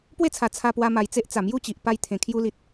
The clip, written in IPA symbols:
p w e˥˧ t͡sʰ a˨˩ t͡sʰ a˧ p w a˧ m a˨˩ j t͡s e˦ ʔ t͡s a˨˩ m j u˥˧ t͡ɕ i˨ ʔ p a˧ j t̪ʰ ẽ˨˩ kʰ j u˧ l i˨ t̚

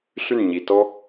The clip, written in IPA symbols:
ɬ y˥˩ n ɲ i˩ t ɔ˥

